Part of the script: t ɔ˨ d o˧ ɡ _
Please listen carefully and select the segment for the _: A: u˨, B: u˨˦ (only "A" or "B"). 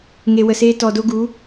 B